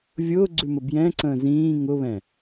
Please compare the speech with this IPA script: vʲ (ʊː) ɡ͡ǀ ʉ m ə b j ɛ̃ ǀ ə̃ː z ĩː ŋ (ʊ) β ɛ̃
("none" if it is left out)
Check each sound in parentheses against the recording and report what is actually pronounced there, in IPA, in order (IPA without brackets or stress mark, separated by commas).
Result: ʊː, ʊ